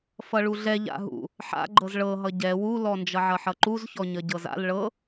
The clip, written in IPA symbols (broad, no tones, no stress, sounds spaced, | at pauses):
f ʌ ɭ u ɮ ɛ ʎ a̰ ɦ ṵ | ħ a̰ ɡ͡ǃ ɤ z ɭ ɤ ɦ ʌ ɟ ɛ w u l ɔ n d͡ʒ ʌ ʕ ʌ ħ ʌ ǃ u z ç ɔ ɲ ʌ ɟ ɤ z a̰ l ɭ ɤ